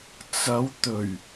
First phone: t͡s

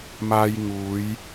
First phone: m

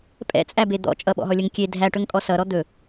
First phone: pʼ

